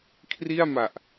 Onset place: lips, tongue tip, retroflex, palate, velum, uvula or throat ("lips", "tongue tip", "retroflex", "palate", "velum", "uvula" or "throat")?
velum